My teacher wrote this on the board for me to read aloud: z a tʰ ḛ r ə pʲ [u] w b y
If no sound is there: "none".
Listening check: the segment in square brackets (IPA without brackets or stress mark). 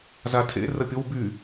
o